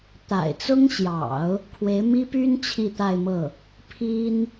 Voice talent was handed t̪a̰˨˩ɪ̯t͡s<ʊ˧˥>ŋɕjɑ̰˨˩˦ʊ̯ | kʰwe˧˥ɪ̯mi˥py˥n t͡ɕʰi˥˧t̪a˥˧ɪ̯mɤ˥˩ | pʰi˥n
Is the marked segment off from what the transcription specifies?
yes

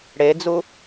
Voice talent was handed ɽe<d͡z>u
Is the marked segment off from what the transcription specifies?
no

